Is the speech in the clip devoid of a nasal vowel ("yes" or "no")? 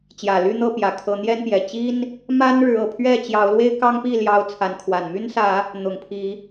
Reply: yes